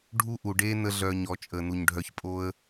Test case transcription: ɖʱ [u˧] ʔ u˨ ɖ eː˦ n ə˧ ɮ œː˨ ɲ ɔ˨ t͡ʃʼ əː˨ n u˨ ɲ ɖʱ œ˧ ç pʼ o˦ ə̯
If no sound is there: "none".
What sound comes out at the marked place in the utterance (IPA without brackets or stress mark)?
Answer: u˦